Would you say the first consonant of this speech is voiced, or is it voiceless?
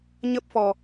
voiced